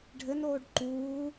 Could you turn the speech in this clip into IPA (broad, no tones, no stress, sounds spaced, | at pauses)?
ɖʱ ɘ n oː ɖ ǃ uː